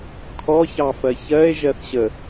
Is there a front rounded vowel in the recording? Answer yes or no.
no